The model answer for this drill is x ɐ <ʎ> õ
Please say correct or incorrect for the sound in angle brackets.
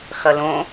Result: incorrect